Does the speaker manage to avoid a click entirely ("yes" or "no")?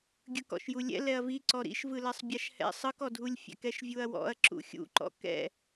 no